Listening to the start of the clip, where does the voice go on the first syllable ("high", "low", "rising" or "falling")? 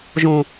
low